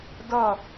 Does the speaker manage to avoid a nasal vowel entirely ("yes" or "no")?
yes